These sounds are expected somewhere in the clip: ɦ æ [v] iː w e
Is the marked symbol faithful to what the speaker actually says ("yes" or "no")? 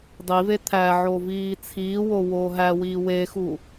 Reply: no